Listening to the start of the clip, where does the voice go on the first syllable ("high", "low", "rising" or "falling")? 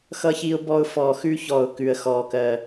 high